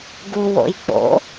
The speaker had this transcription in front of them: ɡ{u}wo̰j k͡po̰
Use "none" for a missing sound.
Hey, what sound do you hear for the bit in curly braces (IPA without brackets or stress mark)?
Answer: u